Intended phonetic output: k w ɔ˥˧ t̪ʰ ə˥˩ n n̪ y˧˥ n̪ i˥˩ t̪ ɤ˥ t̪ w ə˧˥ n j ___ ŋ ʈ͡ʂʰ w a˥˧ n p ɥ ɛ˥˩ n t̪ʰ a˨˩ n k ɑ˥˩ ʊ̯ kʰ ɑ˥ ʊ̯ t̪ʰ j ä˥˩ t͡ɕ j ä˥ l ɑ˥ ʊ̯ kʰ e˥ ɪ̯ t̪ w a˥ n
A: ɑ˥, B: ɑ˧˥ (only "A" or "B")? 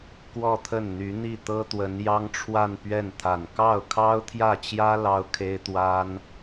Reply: A